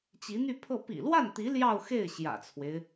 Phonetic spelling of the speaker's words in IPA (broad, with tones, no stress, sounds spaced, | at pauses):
t͡ɕ i˧˥ n̪ y˥˧ pʰ ɤ˥˩ p ḭ˨˩ l w a˥˩ n t̪ i˧˥ l j ɑ˥˧ ʊ̯ x e˥˩ ɪ̯ ɕ j ä̰˨˩ t͡sʰ w e˦ ɪ̯